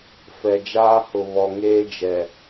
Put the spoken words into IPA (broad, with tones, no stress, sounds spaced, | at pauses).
f ɛ˨ d͡ʒ aː˦ h ʊ˨ β ɔ˨ ŋ eː˦ d͡ʒ ɛ˨